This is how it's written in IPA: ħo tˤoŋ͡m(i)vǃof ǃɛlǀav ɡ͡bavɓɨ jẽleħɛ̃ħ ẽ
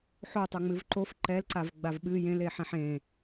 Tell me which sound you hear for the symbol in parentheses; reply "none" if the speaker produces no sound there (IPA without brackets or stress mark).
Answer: ɨ